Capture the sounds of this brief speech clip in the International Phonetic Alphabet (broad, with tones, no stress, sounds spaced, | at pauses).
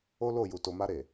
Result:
o˦ l o˦˨ j u˨ t o˨ m a˧ ɾ e˨